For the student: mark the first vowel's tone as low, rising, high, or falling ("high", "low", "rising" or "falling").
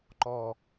low